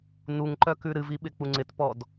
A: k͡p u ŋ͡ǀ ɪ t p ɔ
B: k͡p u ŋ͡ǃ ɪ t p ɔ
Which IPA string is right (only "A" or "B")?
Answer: A